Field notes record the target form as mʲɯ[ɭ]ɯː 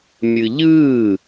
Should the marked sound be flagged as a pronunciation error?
yes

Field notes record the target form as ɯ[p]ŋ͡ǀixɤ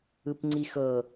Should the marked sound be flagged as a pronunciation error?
no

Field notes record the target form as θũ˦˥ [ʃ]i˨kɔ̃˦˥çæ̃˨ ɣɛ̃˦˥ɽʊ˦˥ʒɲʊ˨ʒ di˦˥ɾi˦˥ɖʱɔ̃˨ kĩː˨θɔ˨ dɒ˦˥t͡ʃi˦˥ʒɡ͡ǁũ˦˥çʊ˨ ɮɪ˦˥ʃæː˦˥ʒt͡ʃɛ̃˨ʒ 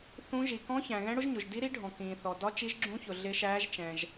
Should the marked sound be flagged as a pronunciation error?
yes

